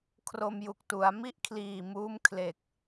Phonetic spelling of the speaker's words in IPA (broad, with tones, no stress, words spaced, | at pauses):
kʰro˧mju˨˩k̚tu˩˦a̯ mi˥˩ʔkʰliː˨˩muː˦˥m kʰle˨˩k̚